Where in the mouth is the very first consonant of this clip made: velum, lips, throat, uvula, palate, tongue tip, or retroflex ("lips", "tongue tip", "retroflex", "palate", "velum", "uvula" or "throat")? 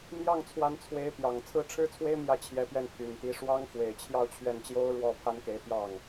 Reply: lips